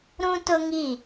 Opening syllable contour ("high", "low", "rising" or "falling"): high